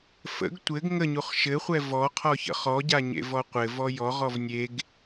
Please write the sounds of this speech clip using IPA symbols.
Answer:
f ə̰ ɡ tʷ ɘ ɡ ŋ ə ɲ u χ ʃ ɘ χʷ ɛ v ɔ qʰ ɔ ç ə̰ χ ɔ ɟ a ɲ ḛ v ɔ qʷ ɘ v ɔ j ɔ ʁ ɔ v nʲ e ɡ

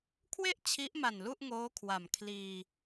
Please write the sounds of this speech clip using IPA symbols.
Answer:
kʰ w e˥˩ ʔ t͡ɕʰ i˦˥ ʔ m a˨˩ n l u˥˩ ʔ ŋ oː˦˥ kʰ w a˨˩ m kʰ l iː˧

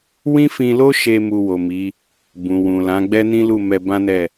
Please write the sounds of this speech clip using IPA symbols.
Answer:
w ĩ˦ f ĩ˧ l o˦ ʃ e˧ m u˧ w o˨ m i˨˦ | b ũ˨ w ũ˨ l ã˨˦ ɡ͡b ɛ˦ n ĩ˦ l u˦˨ m ɛ˧ b ã˦ n ɛ˦˨

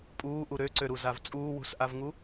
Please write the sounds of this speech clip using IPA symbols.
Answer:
pʼ uː ʔ u ɾ ø ǀ ø ɾ u z a v t͡sʼ uː w ṳ s ʔ a v ŋ u

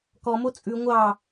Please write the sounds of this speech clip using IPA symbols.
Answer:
k ɔ m o t͡sʼ ʉ ŋʷ ɑ

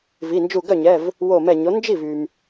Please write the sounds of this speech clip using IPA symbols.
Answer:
v i˩˧˩ n d͡ʒ u˧˩ ɡ œ˥˩ ɲ ɛ˩˧˩ v | w o˧˩ m ɛ˧˩ ɲ o˩˥ n d͡ʒ i˥˩ v y˩ m

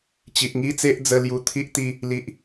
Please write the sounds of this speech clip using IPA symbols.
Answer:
t͡ɕ i˨ ʔ ŋ i˦ t͡s e˦ ʔ d͡z ə˦ l j u˧ t̪ʰ i˦ ʔ t̪ i˥˧ | l i˦ ʔ

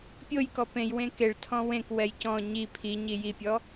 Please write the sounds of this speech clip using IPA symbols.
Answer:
pʲ o j k ɔ p ẽ j w ẽ k e ɭ tʰ ɔ̃ w ẽ k w ɛ j c ɔ̃ ɲ i pʰ i ɲ i j i pʲ ɔ

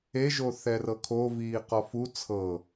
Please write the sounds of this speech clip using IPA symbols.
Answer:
e ʒ o θ ɛ r ɤ kʰ o v iː q ɔ f u t͡sʰ ɤ

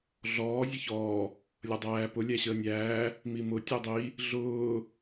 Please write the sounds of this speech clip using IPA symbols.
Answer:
ɮ ɔː zʲ ʌ ç ɔː | lʲ ʌ dˤ æː p ʊ lʲ æ ɕ əː nʲ æː | m i m ʊ tʲ ɜ dˤ i | ɮ ʊː

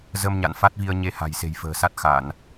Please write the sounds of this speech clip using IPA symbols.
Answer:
z ə˧ m ɲ a̰˧˨ n f a˦˥ t̚ v i˧ ə̯ ɲ e˧ h a̤˨˩ j s e̤˨˩ j f ə̤ː˨˩ s a˦˥ t̚ x a˧˩˨ n

